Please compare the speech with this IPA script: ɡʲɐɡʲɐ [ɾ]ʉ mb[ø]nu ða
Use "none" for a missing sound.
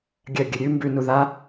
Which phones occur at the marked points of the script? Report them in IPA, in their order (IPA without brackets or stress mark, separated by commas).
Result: ɾʲ, ʉ